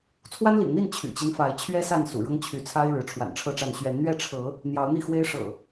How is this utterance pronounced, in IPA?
t͡sʰ w a˦ n l ḭ˨˩ ŋ n̪ i˥˨ n t͡ɕʰ y̰˨˩ t͡ɕ i˦ n f a˨˦ ɪ̯ t͡ɕʰ ɥ ɛ˦ s a˥˨ n s ṵ˨˩ ɻ ɤ˦ ŋ t͡ɕʰ y˨˦ t͡sʰ a˦ ɪ̯ ɻ ɻ̩˨˦ ʈ͡ʂʰ w a̰˨˩ n ʈ͡ʂʰ ɤ˥˨ ʈ͡ʂ a˥˨ n ɕ ɥ ɛ˨˦ n n̪ ɥ ɛ˥˨ ʈ͡ʂʰ ɤ˨˦ | n̪ j ɑ˨˦ ʊ̯ n̪ i˥˨ x w e˦ ɪ̯ ʂ ɤ̰˨˩

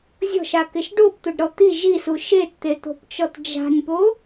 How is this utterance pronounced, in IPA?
zʲ ɔ̤ ʃ a k ɪ ʃ ɖ o p t̪ ʊ ɖ ɾ ɔ t̪ i ʒ i s u ʃ e t t̪ e t̪ o̤ p t͡ʃ ɔ t d͡ʒ a̤ nʲ p o

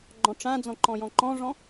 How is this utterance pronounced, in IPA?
ɡ͡ǃ ɔ̃ ʈ͡ʂ ã d͡z ɔ̃ ǃ ɔ̃ j ɔ̃ ǃ ɔ̃ ʐ ɔ̃

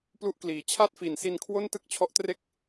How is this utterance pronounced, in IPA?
p l u˦˥ ʔ k l iː˩˦ t͡ɕʰ a˥˩ t̚ f i˨˩ n s i˧ n kʰ w o˥˩ n t ɯ˥˩ k̚ t͡ɕʰ ɔ˦˥ ʔ t r e˥˩ k̚

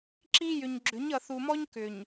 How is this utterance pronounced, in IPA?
ǁ i˦ j ʏ˨ ɲ ɡ͡ǁ ʏ˨˦ ɲ ʌ˨ θ u˨ m ɔ˦ ɲ k ʏ˨ ɲ

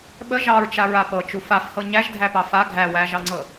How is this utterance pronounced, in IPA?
ɓ ə ʒ ɑ ɹ t͡ʃ a ɹ a p ɤ t͡ʃ u f a f h ɤ ɲ æ ʒ dʱ æ p ɑ f a ɡʱ æ w æ ʒ ɑ ŋ͡ǀ ɤ

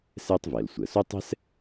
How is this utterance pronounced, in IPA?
s ɛː˥ tˤ v ɛː˩ l sʷ əː˩ s o˥ tˤ ɛ̤˥ s

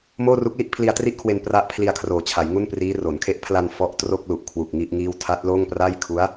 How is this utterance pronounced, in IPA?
m oː˥˩ r u˦˥ k̚ l i˦˥ ʔ pʰ l i˧ a̯ t r i˥˩ ʔ kʰ w e˧ n p r a˦˥ ʔ pʰ l i˧ a̯ kʰ r oː˨˩ t͡ɕʰ a˩˦ j ŋ u˥˩ n p r iː˦˥ r o˩˦ n kʰ e˦˥ ʔ pʰ l a˧ n f ɔ˦˥ ʔ t r o˥˩ k̚ l u˨˩ ʔ kʰ w u˨˩ k̚ ŋ i˥˩ ʔ ŋ iː˥˩ w tʰ a˦˥ t̚ l oː˥˩ ŋ p r a˥˩ j kʰ u˦˥ a̯

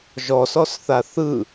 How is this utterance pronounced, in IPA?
ʒ ɔ s ɔ s θ a θ ɯ

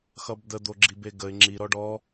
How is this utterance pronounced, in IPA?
x ʌ b d̪ ə d̪ o ɡ͡ǁ i b e ɡ ə ɪ̯ ŋ͡ǁ i ɾ ɔ ɖ ɔ

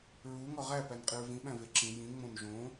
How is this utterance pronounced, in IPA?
ɹ u ŋ ɒ ʁ æ p æ n qʼ i ɹ v ĩ ɓ æ̃ v e ǁ ĩ j ĩ ŋ͡m õ n ʒ õ

